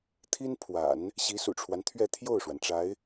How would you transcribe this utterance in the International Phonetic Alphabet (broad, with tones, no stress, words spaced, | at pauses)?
t̪ʰi˥npʰwa̰˨˩˦n | ɕi˧˥sṵ˨˩ʈ͡ʂʰwa˦nt̪ʰɥɛ˥˧ t̪ʰjo˥˩ʊ̯ʂwa˩nʈ͡ʂa˧˥ɪ̯